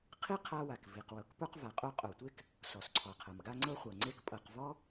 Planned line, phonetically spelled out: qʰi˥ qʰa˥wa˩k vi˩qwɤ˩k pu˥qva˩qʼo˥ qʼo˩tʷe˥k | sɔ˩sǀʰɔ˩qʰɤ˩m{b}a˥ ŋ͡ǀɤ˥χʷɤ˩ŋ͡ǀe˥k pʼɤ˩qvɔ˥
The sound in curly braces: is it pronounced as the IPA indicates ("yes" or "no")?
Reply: no